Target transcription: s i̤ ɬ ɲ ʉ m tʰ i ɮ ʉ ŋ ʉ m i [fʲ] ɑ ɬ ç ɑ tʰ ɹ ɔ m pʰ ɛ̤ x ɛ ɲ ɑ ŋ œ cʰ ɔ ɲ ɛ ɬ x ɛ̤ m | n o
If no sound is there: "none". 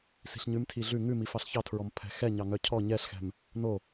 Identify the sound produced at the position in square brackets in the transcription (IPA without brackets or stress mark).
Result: f